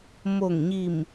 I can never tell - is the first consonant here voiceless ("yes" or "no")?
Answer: no